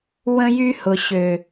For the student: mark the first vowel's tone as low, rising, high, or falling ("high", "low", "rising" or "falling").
high